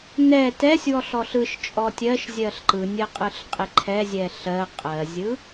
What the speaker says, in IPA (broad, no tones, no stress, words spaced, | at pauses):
nɛ tɛsʲwɔɬ ɔɬɯʃt͡ʃʼɔ tʲɜʃ zʲɜɬǃɯnʲɜ qʼɯɬqʼɪǃʰɛzʲɛ ɬɜ qʼɜzʲɯ